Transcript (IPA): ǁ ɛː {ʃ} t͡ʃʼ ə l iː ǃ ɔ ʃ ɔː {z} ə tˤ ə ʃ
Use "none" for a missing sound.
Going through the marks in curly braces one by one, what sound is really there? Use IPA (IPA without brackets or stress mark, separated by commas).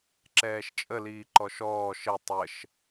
ʃ, ʃ